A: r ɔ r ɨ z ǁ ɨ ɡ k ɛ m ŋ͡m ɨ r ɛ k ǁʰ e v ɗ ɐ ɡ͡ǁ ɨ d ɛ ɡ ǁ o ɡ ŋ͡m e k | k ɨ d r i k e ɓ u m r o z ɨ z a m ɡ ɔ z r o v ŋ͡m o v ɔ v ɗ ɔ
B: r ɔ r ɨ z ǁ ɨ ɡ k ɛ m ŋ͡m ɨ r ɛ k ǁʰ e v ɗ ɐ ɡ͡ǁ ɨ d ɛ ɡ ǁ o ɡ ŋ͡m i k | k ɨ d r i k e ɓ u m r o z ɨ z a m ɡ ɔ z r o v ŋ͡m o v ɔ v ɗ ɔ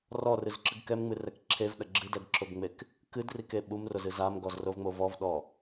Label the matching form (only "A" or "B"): A